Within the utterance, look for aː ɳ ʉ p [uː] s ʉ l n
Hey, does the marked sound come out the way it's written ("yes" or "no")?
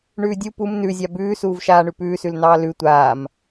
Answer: no